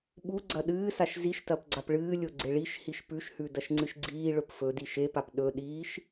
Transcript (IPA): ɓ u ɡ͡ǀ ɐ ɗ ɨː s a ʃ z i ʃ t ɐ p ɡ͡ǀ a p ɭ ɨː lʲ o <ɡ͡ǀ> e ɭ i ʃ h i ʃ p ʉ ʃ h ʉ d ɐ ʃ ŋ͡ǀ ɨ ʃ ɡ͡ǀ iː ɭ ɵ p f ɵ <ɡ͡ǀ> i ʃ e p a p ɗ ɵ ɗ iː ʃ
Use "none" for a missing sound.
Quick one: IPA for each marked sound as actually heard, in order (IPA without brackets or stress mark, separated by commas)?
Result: ɡ͡ǀ, d